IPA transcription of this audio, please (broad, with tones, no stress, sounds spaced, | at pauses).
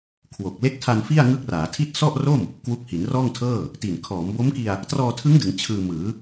kʰ w o˨˩ k̚ l e˦˥ k̚ tʰ a˧ n f i˥˩ a̯ ŋ ɯ˦˥ k̚ r aː˩˦ tʰ i˥˩ t̚ s ɔ˥˩ ʔ r o˥˩ m | k w u˦˥ k̚ h i˩˦ n r ɔː˥˩ ŋ tʰ ɤː˥˩ | t i˨˩ n kʰ ɔː˩˦ m b o˦˥ m k i˧ a̯ | t r ɔː˧ tʰ ɯ˦˥ ŋ d ɯ˩˦ ŋ t͡ɕʰ ɯː˧ m ɯː˩˦